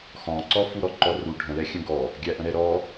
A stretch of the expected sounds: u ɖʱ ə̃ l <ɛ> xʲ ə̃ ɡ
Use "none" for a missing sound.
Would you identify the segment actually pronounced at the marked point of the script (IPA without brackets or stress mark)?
ɛ